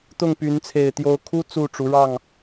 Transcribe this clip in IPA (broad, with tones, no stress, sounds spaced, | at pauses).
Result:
t̪ ʊ˥˨ ŋ p y˨˦ n t͡sʰ e˨˩ ɪ̯ t̪ j o˨˦ ʊ̯ kʰ u˦ t͡s u˥˨ ʈ͡ʂ u˨˦ ɻ ɑ˥˨ ŋ